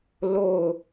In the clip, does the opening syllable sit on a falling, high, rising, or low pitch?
falling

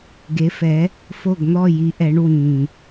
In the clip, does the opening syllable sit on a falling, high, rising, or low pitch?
rising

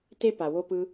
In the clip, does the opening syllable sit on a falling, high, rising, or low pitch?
high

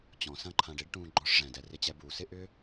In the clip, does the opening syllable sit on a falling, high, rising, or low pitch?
low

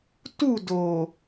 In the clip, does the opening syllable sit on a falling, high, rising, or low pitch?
falling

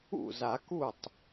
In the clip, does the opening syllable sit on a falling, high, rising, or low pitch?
falling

